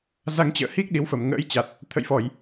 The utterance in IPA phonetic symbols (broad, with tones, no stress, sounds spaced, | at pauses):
z a˧ ŋ t͡ɕ ə̰ː˧˨ h i˦˥ k̚ ɗ i˨˦ w f ə˨˩ m ŋ ə̰ː˧˥ j t͡ɕ a˨˩ t̚ | t̪ʰ ə̰˧˨ j f ɔ˧˩˨ j